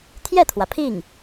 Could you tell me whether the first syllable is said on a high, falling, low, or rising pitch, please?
falling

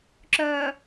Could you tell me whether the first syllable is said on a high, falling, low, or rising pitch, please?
low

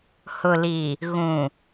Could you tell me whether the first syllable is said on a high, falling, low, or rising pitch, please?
low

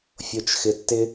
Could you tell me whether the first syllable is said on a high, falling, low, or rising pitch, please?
low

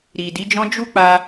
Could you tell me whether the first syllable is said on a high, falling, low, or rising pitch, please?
low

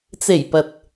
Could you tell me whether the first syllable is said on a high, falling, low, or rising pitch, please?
low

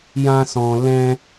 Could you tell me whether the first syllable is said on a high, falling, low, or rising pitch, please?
high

